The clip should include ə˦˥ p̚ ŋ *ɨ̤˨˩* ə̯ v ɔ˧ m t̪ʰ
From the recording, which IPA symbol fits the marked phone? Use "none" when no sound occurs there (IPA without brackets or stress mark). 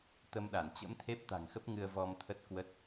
ɨ˧